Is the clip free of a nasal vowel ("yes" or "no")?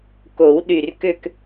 yes